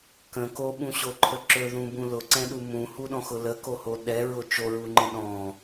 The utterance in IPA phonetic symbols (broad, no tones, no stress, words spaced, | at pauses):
kə̃ koɓũɕoǃʰə ǁɵðũbũ lʊǀɛ̃ɗu mũhuɗɔ̃xʊ ləkoho ɗɛɹʊ t͡ʃoɹuŋ͡ǃə̃ ɗɔ̃